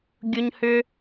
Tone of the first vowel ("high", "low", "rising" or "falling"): high